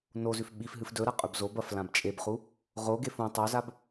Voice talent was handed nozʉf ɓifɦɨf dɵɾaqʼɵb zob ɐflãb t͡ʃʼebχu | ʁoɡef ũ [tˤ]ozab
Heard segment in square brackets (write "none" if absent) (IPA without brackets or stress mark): tˤ